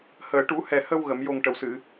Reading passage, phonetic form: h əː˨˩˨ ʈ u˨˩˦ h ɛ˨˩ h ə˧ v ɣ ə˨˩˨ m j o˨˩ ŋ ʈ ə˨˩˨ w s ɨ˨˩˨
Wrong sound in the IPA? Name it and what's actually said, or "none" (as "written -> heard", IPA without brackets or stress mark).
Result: v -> w